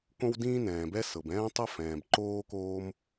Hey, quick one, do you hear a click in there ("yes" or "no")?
yes